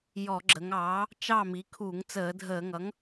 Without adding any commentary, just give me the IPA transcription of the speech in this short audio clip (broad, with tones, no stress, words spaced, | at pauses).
jɔ˧˩˧ɡ͡ǁə˩˧ŋ ɑː˩˥ | t͡ʃɑ˥˨mi˩˥ kʰu˧˩˧ŋ t͡səː˧˩˧dʱəː˧˩˧ŋʌ˩˥ŋ